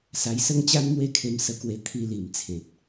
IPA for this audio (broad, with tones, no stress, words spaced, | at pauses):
sa˧jsə˦ŋ t͡ɕa˦nmwe˥˧kʰe˧m sə˧kwe˧ t̪ʰi˧li˨˩m t͡sʰẽ˨t̚